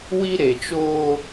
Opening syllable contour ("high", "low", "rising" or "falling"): high